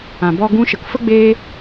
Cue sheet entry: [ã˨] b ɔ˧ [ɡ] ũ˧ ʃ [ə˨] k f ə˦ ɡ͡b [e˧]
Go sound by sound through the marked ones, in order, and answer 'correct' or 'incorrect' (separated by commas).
correct, correct, correct, incorrect